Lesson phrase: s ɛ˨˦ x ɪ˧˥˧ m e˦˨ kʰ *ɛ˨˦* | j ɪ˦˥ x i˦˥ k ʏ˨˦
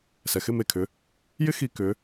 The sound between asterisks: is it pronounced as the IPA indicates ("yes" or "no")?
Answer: no